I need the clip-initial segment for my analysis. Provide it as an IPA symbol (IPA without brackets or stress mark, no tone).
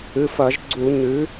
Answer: ɨ